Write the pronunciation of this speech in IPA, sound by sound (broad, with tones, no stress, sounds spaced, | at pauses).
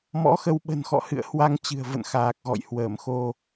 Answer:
m ɔ̰˧˥ x ə˧ w ɓ ə̤˨˩ n x ɔ̰˧˨ h ɨ̰˧˨ ə̯ h w a˧ ŋ t͡ɕ ɨ̤˨˩ ə̯ v ə̰˧˨ n x aː˨˩ k̚ ɣ ɔ̰˧˨ j h w əː˧˩ m x o˧